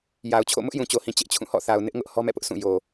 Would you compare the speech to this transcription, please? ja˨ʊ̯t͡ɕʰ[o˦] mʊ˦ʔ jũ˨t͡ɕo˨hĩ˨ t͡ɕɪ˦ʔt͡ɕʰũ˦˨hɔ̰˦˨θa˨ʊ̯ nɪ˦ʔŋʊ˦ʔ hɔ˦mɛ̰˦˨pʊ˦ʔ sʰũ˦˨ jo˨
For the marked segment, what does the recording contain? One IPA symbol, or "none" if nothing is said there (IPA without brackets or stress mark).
o̰˦˨